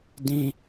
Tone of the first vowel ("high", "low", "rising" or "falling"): high